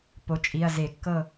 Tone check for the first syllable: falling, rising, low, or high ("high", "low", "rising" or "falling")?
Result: rising